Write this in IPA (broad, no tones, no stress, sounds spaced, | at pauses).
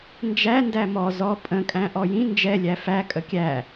n d͡ʒ æ n d æ m ɔ z ɔ pʼ ə̃ kʼ æ̃ ʔ ɔ j ĩ n d͡ʒ ɛ lʲ æ f æ kʼ ə kʲ æ